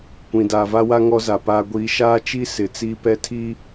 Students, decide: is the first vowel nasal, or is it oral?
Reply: nasal